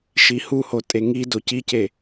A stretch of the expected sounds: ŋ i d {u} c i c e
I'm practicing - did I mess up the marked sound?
yes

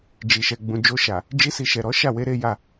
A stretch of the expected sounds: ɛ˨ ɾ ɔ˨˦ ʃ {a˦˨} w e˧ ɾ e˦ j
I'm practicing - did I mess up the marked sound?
no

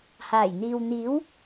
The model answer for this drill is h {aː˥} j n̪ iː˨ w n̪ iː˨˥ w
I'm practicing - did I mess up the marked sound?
yes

